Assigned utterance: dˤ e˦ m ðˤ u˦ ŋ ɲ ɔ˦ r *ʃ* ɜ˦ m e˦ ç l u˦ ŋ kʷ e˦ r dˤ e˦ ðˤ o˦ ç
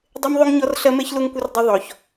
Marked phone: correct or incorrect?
incorrect